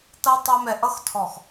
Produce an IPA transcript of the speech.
t ʌ˦ tˤ ɑ˦ m ɛ˨ ʔ ʌ˦ x tʰ ɔ˨ x

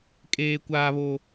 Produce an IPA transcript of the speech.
kʼ eː˦ kʷ aː˦ β o˦

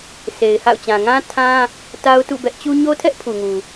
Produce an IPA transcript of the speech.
s e˨ ɪ̯ h a̰˦˨ ʊ̯ t͡ɕ ã˨ ŋ ã˦ tʰ ã˦ | t a˦ ʊ̯ t ṵ˦˨ b ɛ˦ ʔ t͡ɕ u˦ ɲ o˦ tʰ ɛ˦ ʔ pʰ u˨ ŋ u˨

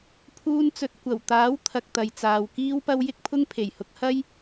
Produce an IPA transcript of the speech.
pʰ uː˥ n t͡s ɵ˧ t̚ kʷ ɐ˨˩ w t̪ aː˨˥ w t̪ʰ ɐ˧ k̚ t̪ ɐ˨ j t͡s aː˨ w k iː˥ w p ɐ˥ w j ɪ˥ k̚ pʰ ʊ˥ ŋ pʰ e˨˩ j h ʊ˨˥ k̚ h ɐ˥ j

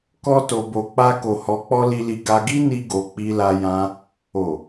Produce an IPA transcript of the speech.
k ɔ˦ t o˧ b o˧ k͡p a˦ k o˧ h ɔ˧ k͡p ɔ˦ l i˧ l i˧ ɡ a˧ ɡ i˦ n i˧ ɡ o˨ k͡p i˧ l a˧ j ã˧ | o˨

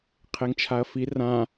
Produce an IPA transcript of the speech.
qʰ e ŋ t͡ʃʰ a ɐ̯ f i r ã

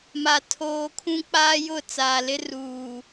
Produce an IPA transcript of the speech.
m a˦ tʰ oː˦ kʰ ũ˦ k͡p aː˦ j ʊ˦˨ t͡s aː˨ l ɪ˦ r uː˨

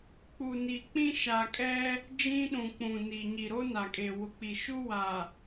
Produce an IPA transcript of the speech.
k͡p u˨ n i˨ k͡p ĩ˦ ʃ a˨ kʼ ɛ˦ | d͡ʒ ĩ˦ ɗ ũ˨ k͡p ũ˨ n i˨ ɲ i˨ ɾ o˦ n a˨ kʼ e˨ w ʊ˨ k͡p i˨ ʃ u˦ w a˨

